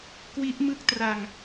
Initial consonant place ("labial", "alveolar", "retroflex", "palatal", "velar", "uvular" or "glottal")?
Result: velar